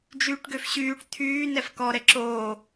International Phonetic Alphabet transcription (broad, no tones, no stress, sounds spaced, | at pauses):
d͡ʒ yː ʈ ɡ ø f ɕ yː ʈ t̪ʰ yː n ɛ f k ɔ ɾ ɛ ǁ oː